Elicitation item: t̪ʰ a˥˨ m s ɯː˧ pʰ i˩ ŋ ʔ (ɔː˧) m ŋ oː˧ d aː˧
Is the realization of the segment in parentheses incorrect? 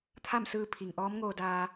yes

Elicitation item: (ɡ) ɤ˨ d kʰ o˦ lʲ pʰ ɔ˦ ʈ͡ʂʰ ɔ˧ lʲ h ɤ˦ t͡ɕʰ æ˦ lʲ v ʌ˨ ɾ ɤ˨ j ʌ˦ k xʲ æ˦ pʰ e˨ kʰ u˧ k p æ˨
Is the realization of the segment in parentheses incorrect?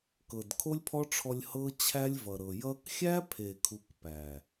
yes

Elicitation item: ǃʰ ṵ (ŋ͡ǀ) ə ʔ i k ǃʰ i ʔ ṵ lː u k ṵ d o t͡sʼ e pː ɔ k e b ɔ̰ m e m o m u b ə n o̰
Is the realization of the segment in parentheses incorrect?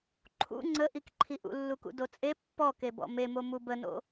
no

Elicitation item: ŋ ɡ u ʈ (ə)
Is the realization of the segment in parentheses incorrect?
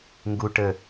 no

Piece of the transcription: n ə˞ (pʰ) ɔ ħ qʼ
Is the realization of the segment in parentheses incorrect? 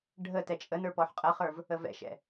yes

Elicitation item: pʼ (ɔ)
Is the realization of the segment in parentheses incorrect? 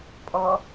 no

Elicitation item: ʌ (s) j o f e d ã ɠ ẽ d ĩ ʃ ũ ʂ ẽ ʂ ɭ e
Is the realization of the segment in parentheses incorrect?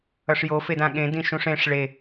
yes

